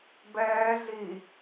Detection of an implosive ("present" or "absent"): absent